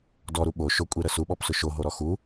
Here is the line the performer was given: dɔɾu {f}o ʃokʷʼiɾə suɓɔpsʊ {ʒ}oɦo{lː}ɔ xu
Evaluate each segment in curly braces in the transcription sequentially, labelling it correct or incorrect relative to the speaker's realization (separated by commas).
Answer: incorrect, incorrect, incorrect